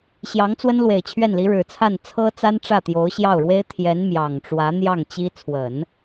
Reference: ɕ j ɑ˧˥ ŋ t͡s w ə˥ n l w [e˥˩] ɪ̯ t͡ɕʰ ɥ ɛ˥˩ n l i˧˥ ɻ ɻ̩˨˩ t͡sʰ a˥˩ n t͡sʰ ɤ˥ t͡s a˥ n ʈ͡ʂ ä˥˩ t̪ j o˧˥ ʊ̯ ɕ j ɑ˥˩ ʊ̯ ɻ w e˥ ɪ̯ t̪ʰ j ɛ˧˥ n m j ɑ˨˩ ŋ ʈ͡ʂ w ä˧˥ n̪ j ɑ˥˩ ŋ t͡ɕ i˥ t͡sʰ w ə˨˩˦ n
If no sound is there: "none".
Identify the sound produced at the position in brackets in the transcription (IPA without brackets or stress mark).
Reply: e˨˩